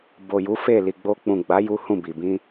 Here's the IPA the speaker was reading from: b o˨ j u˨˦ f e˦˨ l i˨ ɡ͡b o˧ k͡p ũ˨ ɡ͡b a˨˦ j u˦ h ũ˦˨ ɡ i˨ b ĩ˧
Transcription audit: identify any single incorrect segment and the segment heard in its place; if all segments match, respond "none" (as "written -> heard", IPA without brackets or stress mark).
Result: ɡ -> b